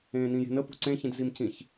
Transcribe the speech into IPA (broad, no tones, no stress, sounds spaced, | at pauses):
ẽː n ĩ j e̤ n ə p ṳ ǀ ẽ ç ĩ d z i m c ĩ ç